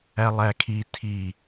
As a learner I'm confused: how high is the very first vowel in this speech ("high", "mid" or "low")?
low